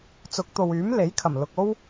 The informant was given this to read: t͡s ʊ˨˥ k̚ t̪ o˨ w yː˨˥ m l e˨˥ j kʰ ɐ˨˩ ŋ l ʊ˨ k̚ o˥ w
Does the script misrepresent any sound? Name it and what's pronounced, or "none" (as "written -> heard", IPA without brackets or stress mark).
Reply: ŋ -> m